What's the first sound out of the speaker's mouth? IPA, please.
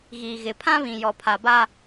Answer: ɣ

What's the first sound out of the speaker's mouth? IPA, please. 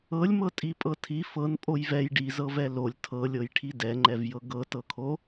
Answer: ɤ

